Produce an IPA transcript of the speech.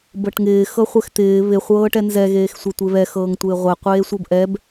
bɤʈŋɪː xɤχʷɛxt̪ɪː βɪ χʷɤːʈɛnzɛ ɣeːxsʷɛtʷeβɛ xɤːŋtʷɪːʁʷɛ qʷeːsʷɤbʔɛb

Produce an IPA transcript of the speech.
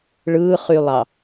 ɭɯːχylˠɑ

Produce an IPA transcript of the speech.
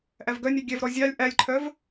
ʔævɡœnʲɛ ɡʲɛvɾɔ zʲɑlʲ ʔælʲǃʰœv

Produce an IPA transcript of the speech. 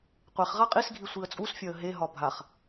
qʷeχ ʁaqʼisɡʱi sʷiə̯t͡sʼusfʲɒə̯ ɦeɦɒ bʱaχ

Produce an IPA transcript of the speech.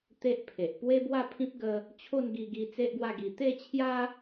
t̪e˦ʔpʰe˨ʔ pwe˦bwa˥˧pʰĩ˦p̚ ɡə˦ | t͡ɕʰo˥˧nɡi˧ɡi˧ t͡se˦ʔɡwa˥˧ɡi˧ t̪e˥˧t͡ɕʰja˦

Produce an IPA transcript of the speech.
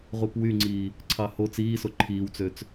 ʁupwyŋ͡ǀiː | ǀʰɑho t͡siːso ǃʰiːwt͡søt͡s

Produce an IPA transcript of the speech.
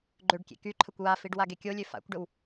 ɡ͡ǃøɖkʲḛ ky ǃʰəkʷwafiɖ waɡekʲolʲø fa̰kʷɖəw

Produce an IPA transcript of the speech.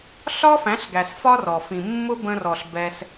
ɬɒ˦fæ̃˨˦ɬɡæ˨s fɒ˦rɔ˨ fĩ˨mːʊ˦bə̃˧ rɔ˨ɬ bɛ˧s

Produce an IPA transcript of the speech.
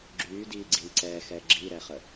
ɡ͡ǁyːdiːɡ͡ǀiː ǀɛxɛ ɡ͡ǁiɾɛχə

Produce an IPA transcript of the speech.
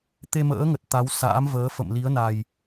t̪e˧mə̰ː˧˥ŋə˨˩t̚ t̪a˨˦w sa̰ː˧˥mvəː˨˦ fə̰˧˨m li˨˦ə̯na˨˩j

